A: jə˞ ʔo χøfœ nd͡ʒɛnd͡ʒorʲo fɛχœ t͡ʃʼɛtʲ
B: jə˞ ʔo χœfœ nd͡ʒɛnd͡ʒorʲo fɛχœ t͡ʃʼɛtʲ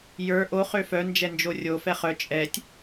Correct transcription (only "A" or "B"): A